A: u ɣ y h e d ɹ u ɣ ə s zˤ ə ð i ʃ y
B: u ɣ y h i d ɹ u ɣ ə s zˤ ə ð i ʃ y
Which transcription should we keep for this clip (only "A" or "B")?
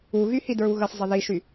B